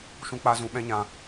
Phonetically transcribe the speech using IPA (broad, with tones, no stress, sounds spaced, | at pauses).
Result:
ʃ ũ˦ k͡p aː˦ z ũ˧ ɓ ɛ̃˦ ɲ ã˧